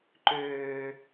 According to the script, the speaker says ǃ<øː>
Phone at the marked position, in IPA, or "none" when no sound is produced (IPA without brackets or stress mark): øː